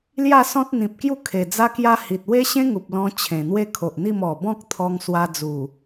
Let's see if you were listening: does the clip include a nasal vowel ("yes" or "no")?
yes